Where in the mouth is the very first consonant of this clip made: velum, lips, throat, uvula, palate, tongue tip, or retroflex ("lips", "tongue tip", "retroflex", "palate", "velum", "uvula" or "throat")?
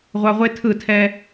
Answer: uvula